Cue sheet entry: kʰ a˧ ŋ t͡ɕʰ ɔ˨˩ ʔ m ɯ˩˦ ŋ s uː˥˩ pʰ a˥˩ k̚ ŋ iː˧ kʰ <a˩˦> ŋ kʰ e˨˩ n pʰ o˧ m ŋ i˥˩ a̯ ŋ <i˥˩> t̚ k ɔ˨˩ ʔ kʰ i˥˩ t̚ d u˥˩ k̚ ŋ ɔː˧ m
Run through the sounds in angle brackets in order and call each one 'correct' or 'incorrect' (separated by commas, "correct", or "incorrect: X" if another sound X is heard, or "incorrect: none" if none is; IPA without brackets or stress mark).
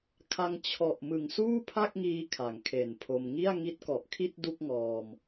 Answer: correct, incorrect: i˦˥